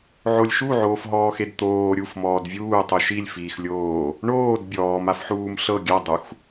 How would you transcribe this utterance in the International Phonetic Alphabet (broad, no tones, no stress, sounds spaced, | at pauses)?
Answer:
ʕ o lʲ ʃ u ʕ oː f ɦ ɔː x e d t̪ oː ɾʲ u f m ɔː d vʲ uː tˤ u ʃ i lʲ f iː x lʲ oː | ɳ oː d bʲ ɔː m a f ħ uː m ɬ ɤ ɡʲ a dˤ u x